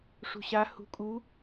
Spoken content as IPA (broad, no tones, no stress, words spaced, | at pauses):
ʂṳɕa hṳ kʼu